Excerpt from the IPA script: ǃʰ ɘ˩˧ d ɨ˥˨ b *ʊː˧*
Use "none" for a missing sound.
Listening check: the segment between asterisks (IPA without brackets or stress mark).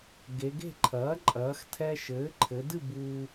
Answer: uː˧